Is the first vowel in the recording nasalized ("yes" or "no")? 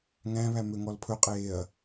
yes